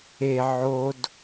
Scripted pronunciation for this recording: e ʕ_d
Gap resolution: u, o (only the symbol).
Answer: o